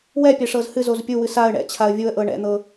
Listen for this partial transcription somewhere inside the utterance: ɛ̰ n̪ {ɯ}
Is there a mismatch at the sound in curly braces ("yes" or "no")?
yes